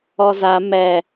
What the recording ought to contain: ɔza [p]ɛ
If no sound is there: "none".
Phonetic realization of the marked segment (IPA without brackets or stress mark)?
m